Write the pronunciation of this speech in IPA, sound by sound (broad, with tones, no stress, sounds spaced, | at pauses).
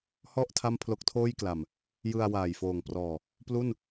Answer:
h ɔ˥˩ ʔ tʰ a˥˩ m pʰ l o˦˥ k̚ tʰ oː˥˩ j k l a˨˩ m | j ɯ˧ a̯ w aː˨˩ j f oː˨˩ ŋ p r ɔː˨˩ | p l u˥˩ n